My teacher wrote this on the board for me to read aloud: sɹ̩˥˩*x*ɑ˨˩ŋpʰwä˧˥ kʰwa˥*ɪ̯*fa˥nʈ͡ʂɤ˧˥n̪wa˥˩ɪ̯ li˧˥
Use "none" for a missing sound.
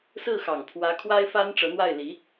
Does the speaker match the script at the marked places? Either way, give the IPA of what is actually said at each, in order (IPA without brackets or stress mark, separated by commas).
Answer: x, ɪ̯